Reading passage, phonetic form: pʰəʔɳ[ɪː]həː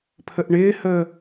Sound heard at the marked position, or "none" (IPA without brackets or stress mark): ɪː